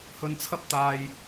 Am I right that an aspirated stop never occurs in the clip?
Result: no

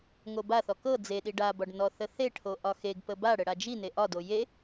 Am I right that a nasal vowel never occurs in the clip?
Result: yes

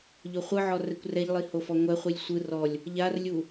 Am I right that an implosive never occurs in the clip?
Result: yes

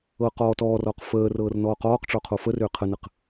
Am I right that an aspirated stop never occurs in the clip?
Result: no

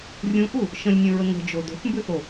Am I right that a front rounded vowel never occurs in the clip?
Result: yes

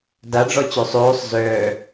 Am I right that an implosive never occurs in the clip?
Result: yes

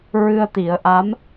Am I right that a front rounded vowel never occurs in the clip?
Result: yes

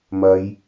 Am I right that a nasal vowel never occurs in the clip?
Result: yes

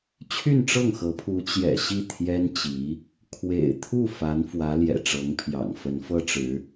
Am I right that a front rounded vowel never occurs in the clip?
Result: no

